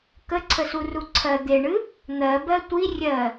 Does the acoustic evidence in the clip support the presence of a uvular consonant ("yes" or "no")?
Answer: no